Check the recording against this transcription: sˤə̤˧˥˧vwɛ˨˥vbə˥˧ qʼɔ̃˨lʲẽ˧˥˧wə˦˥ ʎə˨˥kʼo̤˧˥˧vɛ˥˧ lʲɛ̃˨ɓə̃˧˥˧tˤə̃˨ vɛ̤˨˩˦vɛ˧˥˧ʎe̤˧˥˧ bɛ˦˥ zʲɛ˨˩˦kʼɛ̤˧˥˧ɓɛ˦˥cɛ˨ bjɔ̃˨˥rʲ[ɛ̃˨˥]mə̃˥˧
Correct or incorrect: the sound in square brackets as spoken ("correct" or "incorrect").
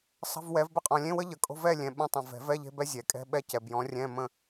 incorrect